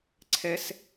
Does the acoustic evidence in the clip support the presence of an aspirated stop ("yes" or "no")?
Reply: yes